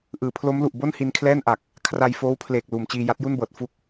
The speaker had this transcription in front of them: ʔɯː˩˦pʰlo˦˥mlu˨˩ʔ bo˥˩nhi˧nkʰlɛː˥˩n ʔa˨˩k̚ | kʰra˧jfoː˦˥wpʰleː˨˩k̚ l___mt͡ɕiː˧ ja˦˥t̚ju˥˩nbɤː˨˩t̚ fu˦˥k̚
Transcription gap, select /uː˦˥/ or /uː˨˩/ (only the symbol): uː˨˩